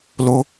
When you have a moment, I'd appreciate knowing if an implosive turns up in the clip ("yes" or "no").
no